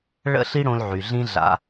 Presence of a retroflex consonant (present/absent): present